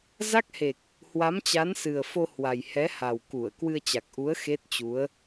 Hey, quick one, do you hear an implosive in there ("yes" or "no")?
no